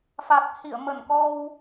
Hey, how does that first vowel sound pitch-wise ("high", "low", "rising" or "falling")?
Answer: low